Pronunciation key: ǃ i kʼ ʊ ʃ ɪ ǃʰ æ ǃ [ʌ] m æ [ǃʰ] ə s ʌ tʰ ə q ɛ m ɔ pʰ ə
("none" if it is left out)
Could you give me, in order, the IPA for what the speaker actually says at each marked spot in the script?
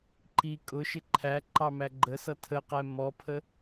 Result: ɑ, ɡ͡ǃ

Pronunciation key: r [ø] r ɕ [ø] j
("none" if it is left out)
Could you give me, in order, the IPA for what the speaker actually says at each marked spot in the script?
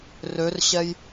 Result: ø, ɛ

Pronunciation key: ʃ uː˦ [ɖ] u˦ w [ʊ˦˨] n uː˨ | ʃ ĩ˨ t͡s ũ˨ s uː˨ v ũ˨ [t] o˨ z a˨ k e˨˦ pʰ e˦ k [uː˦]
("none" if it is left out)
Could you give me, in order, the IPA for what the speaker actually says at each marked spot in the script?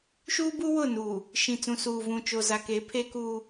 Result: b, ʊ˦˨, t͡ʃ, uː˦

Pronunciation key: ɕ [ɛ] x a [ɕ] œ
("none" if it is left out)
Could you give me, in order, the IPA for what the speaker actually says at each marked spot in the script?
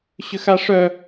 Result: ʏ, ʂ

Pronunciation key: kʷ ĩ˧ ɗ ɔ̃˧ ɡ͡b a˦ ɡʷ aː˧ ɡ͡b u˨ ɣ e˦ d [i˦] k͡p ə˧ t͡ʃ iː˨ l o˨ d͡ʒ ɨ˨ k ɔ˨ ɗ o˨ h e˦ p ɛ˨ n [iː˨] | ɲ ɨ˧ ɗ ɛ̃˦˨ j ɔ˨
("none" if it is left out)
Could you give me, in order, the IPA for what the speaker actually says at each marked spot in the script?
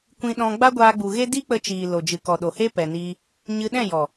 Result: i˦, iː˧

